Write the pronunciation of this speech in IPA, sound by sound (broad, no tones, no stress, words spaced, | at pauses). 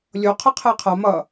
lʲo qʰɯqʰɛqʰa mʌ